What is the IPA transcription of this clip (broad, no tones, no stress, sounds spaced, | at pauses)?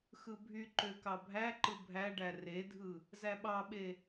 x ɯ bʱ y ǃ ø k ɑ bʱ æ ǃ ɯ bʱ æ ɖ æ r e dʱ ɯ | z æ ɓ ɑ ɓ e